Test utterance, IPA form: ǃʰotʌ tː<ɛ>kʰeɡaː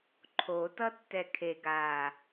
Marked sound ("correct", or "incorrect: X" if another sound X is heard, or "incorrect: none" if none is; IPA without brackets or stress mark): correct